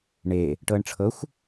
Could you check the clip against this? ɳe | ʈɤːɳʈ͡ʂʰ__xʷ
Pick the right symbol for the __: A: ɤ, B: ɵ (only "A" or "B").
A